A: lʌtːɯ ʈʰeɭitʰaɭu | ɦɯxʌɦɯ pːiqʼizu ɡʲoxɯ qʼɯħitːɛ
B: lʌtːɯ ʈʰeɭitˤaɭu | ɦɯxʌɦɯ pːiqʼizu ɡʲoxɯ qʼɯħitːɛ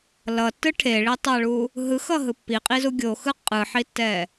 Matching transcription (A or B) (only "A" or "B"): B